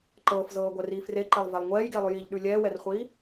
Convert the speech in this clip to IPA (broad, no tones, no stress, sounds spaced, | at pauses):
ǃ ɤː f z ɤː ɡʷ ɛ r iː f r e ǃ ɛ lˠ v ɛ lˠ ŋʷ ɛː j ɡ e lˠ ʉ j i ʎ ɗ ʉ lʲ ɛː w ɛ r χʷ iː